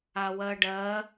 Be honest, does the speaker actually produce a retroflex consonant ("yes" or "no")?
yes